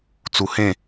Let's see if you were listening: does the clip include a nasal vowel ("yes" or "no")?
yes